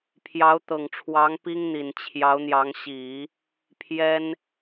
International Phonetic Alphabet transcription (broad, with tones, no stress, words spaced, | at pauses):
pʰjɑ˧˥ʊ̯t̪ɤ˨˩ŋʈ͡ʂʰwɑ˧˥ŋ pi˥ŋn̪i˨˩nt͡ɕʰjɑ˧˥ʊ̯n̪jɑ˧˥ŋ ɕi˨˩˦ | pʰjɛ˥n